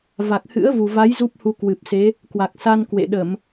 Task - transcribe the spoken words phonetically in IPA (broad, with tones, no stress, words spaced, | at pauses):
va˨˩k̚ hɨ̰˧˥ə̯ vu˨˩va˨˦j zu˦˥p̚hu˧ kwɨ˨˩p̚se˨˦ | kwa˨˩k̚sa˧nkwḛ˧˨ɗə˧˩˨m